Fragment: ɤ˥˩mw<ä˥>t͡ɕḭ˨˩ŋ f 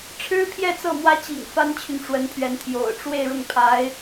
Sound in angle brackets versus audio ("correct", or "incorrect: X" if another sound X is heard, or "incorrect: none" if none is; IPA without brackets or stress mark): correct